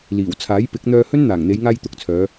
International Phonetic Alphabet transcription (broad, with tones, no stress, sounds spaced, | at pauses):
l iː˨˩ w t͡sʰ aː˨˥ j p ɪ˨˥ k̚ n̪ œː˧ h ɵ˥ n n̪ aː˨˩ ŋ n̪ e˨˧ j ŋ aː˧ j t̪ ʊ˨˥ k̚ t͡sʰ œː˨˧